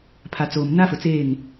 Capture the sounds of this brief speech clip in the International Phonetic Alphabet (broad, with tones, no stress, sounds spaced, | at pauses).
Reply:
pʰ a˨ t͡s oː˨ m n a˦ f ʊ˨ t͡s eː˦˨ ŋ